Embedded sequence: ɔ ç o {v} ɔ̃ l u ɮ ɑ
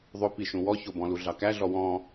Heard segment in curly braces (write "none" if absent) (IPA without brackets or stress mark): b